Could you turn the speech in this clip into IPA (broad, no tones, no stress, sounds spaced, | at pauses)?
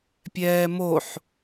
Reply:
pʲ ɛː m o ħ